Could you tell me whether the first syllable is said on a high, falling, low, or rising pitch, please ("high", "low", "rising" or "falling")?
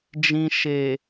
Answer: low